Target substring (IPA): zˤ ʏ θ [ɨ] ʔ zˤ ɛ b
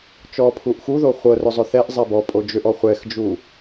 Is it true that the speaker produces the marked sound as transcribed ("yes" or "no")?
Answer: no